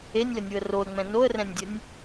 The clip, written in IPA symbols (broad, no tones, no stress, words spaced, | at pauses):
enʲlənʲuə̯ roə̯ŋ͡mɛ̃ noə̯rɛ̃nʲdʲənʲ